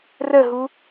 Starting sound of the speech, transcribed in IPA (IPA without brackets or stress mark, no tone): r